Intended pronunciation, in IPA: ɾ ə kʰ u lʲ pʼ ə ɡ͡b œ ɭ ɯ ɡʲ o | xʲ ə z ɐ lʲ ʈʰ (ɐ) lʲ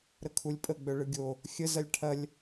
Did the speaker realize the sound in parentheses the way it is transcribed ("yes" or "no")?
yes